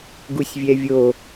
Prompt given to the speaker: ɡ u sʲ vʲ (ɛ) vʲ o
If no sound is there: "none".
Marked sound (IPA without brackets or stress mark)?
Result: ɛ